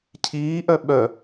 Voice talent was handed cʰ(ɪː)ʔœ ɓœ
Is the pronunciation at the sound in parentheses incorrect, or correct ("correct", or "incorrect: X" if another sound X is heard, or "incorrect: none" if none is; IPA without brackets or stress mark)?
incorrect: iː